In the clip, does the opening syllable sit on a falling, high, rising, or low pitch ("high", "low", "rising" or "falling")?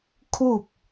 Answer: falling